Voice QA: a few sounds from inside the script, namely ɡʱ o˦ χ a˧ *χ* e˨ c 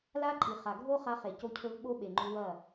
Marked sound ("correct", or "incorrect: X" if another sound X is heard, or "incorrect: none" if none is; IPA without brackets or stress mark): correct